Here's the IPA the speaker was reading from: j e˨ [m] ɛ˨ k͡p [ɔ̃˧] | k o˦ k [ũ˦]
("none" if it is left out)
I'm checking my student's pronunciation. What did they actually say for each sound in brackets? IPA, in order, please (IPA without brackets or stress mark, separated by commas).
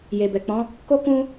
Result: b, ɔ̃˨˦, ũ˦